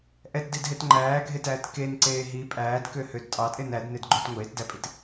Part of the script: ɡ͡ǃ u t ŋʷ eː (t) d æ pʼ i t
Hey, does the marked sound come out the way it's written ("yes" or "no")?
yes